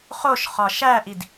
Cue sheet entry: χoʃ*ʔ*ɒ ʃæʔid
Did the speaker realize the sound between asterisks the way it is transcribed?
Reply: no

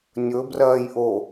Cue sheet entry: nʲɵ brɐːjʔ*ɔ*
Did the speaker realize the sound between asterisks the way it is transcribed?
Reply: no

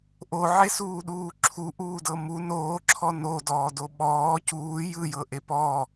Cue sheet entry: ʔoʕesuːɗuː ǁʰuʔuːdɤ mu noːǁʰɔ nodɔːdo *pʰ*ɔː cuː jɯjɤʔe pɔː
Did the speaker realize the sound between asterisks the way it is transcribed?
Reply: no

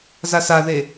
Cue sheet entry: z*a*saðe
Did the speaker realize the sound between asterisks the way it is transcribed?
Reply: yes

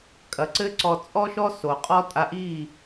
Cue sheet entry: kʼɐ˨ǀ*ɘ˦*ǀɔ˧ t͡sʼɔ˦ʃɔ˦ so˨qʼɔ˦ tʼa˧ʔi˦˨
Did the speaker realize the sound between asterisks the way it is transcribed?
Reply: yes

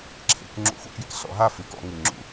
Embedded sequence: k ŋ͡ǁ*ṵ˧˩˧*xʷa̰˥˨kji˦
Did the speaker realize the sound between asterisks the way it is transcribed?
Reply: yes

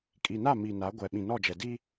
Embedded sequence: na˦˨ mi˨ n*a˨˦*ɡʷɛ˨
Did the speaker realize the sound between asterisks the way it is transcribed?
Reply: yes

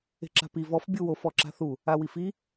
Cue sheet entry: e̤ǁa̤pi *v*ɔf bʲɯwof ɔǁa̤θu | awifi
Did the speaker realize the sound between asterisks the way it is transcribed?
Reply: yes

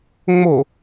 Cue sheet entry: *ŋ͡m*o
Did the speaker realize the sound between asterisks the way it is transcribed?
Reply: yes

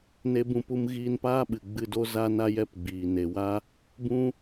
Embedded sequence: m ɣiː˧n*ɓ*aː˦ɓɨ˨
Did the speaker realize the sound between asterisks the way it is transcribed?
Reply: no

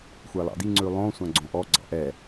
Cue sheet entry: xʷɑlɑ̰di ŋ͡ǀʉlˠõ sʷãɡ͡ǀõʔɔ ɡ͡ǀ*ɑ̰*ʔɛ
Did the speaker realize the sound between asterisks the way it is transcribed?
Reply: yes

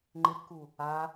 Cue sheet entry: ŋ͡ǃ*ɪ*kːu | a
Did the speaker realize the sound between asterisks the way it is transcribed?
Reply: yes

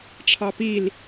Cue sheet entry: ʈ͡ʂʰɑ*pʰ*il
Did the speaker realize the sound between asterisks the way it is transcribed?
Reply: no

